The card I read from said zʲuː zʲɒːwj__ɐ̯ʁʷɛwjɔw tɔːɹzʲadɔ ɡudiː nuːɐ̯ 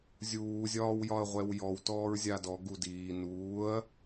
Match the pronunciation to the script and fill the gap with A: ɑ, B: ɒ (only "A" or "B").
B